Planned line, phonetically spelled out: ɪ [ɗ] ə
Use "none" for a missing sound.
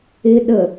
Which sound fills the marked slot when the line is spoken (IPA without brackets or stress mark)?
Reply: ɗ